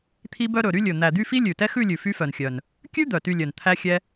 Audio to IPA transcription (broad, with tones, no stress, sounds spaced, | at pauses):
t̪ʰ i˥ b œ˥ ɾ ɵ˨˩ ɾ y˥ lʲ ɵ˨˩ n̪ æ˨˩ d̪ y˥˧ f i˥ lʲ ʉ˨˩ t ɛ˥ x ʉ˥˧ lʲ ʉ˨˩ f y˥ f œ˨˩ n xʲ œ˨˩ n | kʲ ʉ˥ d̪ œ˨˩ t y˥˧ lʲ œ˨˩ n t̪ʰ æ˥ xʲ ɛ˥